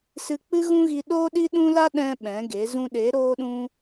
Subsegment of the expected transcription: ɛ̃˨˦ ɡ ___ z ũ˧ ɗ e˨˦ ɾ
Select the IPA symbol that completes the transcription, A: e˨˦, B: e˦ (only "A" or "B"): A